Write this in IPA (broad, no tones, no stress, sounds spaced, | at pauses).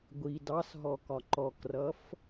ɡʷ i d ɑ s ɦ ɔ k ɒ ǃ ɔ k r ʌ f